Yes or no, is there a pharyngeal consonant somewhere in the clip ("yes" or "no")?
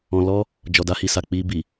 no